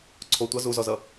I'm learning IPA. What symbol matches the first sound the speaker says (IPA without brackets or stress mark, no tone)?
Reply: ǀʰ